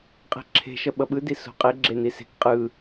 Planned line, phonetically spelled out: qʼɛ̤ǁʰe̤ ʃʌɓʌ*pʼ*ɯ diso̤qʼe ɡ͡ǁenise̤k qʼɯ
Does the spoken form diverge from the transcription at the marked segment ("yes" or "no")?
yes